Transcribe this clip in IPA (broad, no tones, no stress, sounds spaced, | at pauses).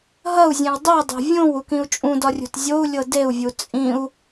ɦ ɐ u̯ zʲ ẽ w dˤ i dˤ e̤ vʲ õ w u k ĩ u̯ t͡ʃʼ ũ d ɒ rʲ ṳ t zʲ o u̯ lʲ ɤ d e u̯ vʲ u t͡sʼ ĩ u̯